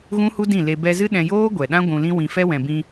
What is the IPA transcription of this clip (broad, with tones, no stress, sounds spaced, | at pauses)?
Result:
ɣ ũ˦ h u˦ d ĩ˦˨ l e˧ b ɛ˧ z ɨ˦ ɗ ɛ̃˧ j oː˦ ɡʷ ɛ˨ ɗ ã˦ ɡʷ ũ˧ l ĩ˦ w ĩ˧ f ɛ˦ w ɛ̃˨ b ĩ˧